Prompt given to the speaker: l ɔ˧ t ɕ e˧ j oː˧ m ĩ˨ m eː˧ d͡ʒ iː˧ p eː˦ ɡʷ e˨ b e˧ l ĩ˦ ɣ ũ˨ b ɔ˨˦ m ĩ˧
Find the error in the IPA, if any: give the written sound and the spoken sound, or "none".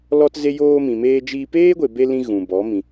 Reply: ɕ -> z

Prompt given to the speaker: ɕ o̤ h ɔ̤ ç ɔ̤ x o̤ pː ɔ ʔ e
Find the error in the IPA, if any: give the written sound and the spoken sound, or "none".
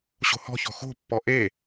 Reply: none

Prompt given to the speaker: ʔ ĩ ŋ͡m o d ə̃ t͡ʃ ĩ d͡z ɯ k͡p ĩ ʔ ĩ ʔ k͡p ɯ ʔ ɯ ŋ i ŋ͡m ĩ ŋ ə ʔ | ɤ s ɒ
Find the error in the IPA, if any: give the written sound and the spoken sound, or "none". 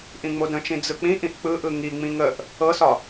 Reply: none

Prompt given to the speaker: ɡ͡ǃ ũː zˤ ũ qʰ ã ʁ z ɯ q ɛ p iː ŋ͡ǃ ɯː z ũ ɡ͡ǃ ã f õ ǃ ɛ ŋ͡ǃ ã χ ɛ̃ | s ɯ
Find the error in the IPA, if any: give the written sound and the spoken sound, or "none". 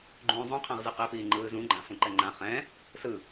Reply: none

